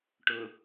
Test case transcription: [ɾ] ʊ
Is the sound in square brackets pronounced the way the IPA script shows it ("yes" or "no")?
no